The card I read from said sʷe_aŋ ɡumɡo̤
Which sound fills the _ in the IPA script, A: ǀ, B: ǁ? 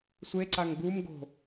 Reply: A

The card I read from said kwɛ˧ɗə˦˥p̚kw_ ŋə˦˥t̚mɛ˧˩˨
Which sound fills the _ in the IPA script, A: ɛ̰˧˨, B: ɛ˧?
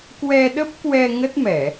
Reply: B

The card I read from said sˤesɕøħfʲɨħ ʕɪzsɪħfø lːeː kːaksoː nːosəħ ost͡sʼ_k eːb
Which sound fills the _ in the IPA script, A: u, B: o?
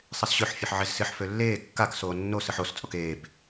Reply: B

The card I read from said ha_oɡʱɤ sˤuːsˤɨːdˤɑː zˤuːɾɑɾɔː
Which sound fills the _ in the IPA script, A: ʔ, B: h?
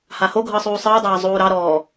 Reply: B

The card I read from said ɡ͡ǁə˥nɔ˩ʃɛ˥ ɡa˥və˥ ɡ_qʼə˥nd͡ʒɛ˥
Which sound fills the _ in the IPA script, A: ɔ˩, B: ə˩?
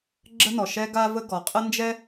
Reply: A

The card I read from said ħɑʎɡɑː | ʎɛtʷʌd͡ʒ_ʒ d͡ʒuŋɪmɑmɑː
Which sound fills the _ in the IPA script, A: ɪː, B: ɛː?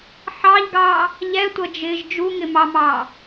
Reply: A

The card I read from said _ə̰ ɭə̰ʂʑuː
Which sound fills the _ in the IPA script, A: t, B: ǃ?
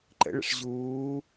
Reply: B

